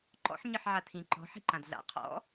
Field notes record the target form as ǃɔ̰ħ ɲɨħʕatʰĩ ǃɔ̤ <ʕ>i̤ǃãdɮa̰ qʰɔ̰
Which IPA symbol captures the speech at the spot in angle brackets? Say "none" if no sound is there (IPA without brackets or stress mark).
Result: ħ